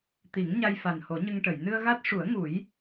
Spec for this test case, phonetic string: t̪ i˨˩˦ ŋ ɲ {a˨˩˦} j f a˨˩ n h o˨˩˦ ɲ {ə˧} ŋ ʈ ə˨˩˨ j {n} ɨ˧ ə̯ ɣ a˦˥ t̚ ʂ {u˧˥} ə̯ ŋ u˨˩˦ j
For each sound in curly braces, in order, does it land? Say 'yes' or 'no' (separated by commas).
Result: no, yes, yes, no